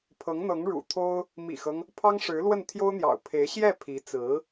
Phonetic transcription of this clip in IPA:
pʰ ɤ˧˥ ŋ n̪ ɤ˧˥ ŋ ɻ ṵ˨˩ t̪ʰ o˥ ʊ̯ | m ḭ˨˩ x ɤ˦ ŋ | pʰ ɑ˥ ŋ ʂ ɻ̩˧˥ l w ə˥˩ n t̪ʰ j o˥ ʊ̯ n̪ j ɑ̰˨˩ ʊ̯ pʰ e˧˥ ɪ̯ ɕ j ɛ˥˩ pʰ i˧˥ t͡s ɹ̩˧˥

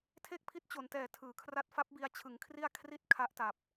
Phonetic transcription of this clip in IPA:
tʰ e˥˩ k̚ pʰ i˦˥ t̚ t͡ɕ o˩˦ n t ɛː˨˩ tʰ ɯː˩˦ kʰ r a˦˥ t̚ f a˦˥ p̚ b i˧ a̯ t͡ɕʰ ɯ˩˦ ŋ kʰ r i˥˩ a̯ kʰ r i˥˩ t̚ kʰ a˦˥ ʔ t a˨˩ p̚

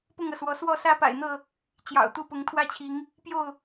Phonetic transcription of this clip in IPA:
p ʊ˥˨ ŋ ɤ˩ s w ɔ˨˦ s w ɔ˥˨ s ä˦ p a̰˨˩ ɪ̯ n̪ ɤ˥˨ | t͡ɕ j ɑ̰˨˩ ʊ̯ t̪ u˥˨ p ʊ˨˦ ŋ t̪ʰ w ä˥˨ t͡ɕʰ i˨˦ ŋ | p j o˥˨ ʊ̯

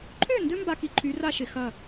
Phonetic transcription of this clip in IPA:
ǃʰ ø˥˩ n d ø˦ m b a˨ k i˨ ǃʰ y˨˥ r a˥˩ ʃ ɪ˨ x ɐ˥˩

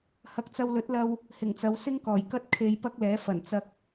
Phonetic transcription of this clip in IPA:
h ɐ˧ k̚ t͡s ɐ˧ w l ɵ˨˥ t̚ l ɐ˧ w | h ɪ˨˩ ŋ t͡s ɐ˨˧ w s ɪ˥ ŋ k ɔː˨˩ j k ɐ˥ t̚ kʰ e˧ j p ɐ˥ k̚ l ɛː˨˥ f ɐ˨˩ n t͡s ɐ˨ k̚

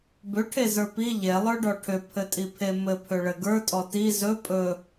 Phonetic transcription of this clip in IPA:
b ʏ ʈʰ e z ə˞ p i ʎ e lˠ ə˞ ɖ ɔ ʈʰ ʏ pʰ ɘ tʼ i pʰ e m ɘ pʰ ʏ ɭ ɘ ɡ ə˞ tʼ ɔ t i z ɵ pʼ ɵ

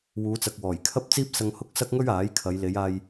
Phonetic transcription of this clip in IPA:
w uː˨˧ t͡s ɐ˨ k̚ w ɔː˨˩ j kʰ ɐ˥ p̚ t͡s iː˥ p̚ s ɐ˧ ŋ h ʊ˥ k̚ s ɐ˥ k̚ ŋ ɵ˥ ɥ aː˨˥ j kʰ ɐ˨˧ j l e˨˧ j aː˧ j

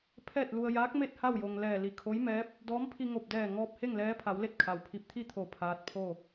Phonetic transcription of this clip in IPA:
pʰ ɛː˥˨ t̚ l u˧ ə̯ j aː˧˥ k̚ m e˥˨ t̚ h a˥˨ w j o˩ ŋ l ɛː˧˩ l i˧˩ kʰ o˧˥ j m ɛː˧˥ p̚ | d ɔː˧˥ m pʰ i˧ ŋ o˧˩ p̚ d ɛː˧˩ ŋ ɔː˧ p̚ h e˥˨ ŋ l ɛː˧˥ pʰ a˩˧ w l e˥˨ t̚ kʰ a˩ w pʰ i˧˩ p̚ t̪ʰ i˥˨ t̪ʰ o˧˩ pʰ aː˧˥ t̚ pʰ o˥˨

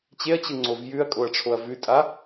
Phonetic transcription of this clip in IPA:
t͡ɕ e ɐ̯ t͡ɕ ɯ ŋ͡ǀ o v j ʉ ɐ̯ kʼ o ɐ̯ ʈ͡ʂʰ o ɐ̯ v ʉ tʼ a

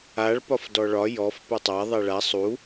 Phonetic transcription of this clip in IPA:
a ɭ p ɒ f d ɔ ɭ ɒ j ɔ f p ɛ tˤ a ðˤ ɛ ɭ a sˤ u

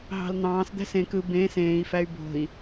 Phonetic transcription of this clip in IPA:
ɦ ɑ̤ l n̪ ɑ̃ː s d̪ æ̤ s ẽ k ɯ b ẽ s ẽː i̯ f æ y̯ b o̤ i̯

